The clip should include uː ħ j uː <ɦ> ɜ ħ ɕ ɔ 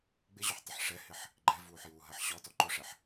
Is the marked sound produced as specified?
yes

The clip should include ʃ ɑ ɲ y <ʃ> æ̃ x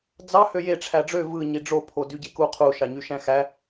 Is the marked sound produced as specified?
yes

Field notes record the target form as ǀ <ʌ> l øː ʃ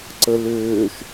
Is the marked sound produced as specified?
no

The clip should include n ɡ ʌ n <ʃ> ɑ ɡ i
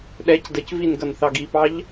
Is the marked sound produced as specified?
no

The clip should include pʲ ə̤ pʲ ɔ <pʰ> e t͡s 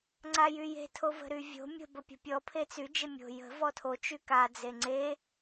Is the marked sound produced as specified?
yes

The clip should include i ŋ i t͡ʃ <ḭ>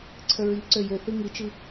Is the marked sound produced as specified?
no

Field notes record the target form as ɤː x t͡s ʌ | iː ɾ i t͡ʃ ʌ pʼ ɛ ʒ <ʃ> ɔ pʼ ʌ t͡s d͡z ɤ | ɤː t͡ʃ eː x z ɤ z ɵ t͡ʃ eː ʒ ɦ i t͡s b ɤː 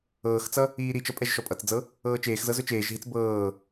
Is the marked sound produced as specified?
yes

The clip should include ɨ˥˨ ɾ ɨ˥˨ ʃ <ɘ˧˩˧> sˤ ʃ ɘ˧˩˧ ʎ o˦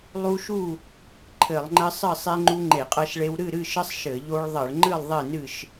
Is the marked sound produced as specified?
no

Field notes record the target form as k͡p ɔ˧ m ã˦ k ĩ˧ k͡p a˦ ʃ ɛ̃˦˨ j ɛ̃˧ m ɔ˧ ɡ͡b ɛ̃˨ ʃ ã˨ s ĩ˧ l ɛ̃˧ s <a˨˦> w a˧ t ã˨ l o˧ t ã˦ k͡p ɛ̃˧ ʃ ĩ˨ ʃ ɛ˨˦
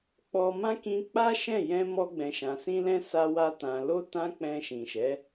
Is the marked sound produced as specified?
no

